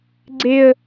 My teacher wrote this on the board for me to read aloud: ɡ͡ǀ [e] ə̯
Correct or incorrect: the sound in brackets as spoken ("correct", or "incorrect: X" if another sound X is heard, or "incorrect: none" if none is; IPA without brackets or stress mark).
correct